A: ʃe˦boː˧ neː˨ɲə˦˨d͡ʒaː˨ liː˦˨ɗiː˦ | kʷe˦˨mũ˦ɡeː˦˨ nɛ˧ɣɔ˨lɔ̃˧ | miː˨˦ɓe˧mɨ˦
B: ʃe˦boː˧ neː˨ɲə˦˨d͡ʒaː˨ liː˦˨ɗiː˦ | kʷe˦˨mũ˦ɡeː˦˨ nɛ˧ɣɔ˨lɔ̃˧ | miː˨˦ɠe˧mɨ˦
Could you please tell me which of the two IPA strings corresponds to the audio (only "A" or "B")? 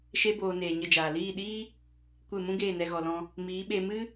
A